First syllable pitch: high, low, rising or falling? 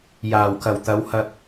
low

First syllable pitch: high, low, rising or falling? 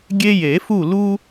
high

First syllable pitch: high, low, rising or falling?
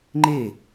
falling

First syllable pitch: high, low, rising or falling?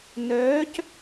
rising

